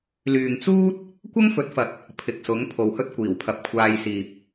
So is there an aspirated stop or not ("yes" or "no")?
yes